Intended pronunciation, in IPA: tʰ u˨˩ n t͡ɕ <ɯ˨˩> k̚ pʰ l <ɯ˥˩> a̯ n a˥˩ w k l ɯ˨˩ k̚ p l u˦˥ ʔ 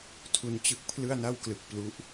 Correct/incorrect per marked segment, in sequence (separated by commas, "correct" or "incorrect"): incorrect, correct